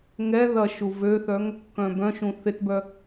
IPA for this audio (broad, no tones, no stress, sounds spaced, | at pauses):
ŋ ɛ ð ɐ ʃ u v ø θ œ ŋ | k œ̃ b œ̃ ʃ ũ θ ɪ t b œ